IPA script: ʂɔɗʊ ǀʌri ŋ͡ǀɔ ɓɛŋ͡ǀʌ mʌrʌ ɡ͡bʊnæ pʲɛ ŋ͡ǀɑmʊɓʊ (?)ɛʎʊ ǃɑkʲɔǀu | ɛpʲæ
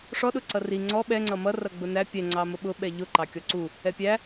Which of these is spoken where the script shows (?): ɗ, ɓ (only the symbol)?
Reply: ɓ